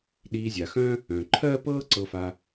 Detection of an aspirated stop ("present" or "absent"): present